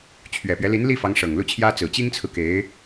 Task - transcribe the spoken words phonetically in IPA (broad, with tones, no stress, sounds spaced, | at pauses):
t͡ɕʰ ɥ ɛ˨˩ p ɥ ɛ˦ l i˧˥ n l i˥˩ f ɑ˧˥ ŋ ʂ ɤ˨˩ ŋ l u˥˩ t͡ɕʰ j ä˥ t͡s ɹ̩˨˩ t͡ɕ i˥ ŋ t͡sʰ ɹ̩˨ k e˧˥ ɪ̯